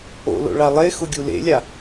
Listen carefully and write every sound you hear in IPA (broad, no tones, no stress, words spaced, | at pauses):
o̰lo̰ɭa lˠexʊɡʲu lḛlʲa